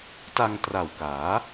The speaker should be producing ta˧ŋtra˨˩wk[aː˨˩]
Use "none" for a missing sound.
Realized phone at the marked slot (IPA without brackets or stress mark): aː˩˦